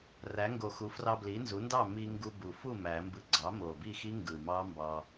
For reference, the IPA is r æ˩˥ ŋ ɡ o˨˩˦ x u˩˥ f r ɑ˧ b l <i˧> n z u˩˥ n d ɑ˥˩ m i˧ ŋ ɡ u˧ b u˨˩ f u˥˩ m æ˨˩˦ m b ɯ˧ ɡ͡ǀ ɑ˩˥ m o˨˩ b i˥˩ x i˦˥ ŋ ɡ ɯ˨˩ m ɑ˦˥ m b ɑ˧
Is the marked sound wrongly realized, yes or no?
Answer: yes